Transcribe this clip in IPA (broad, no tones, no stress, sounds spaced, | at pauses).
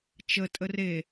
t͡ʃ ə tʼ ə r e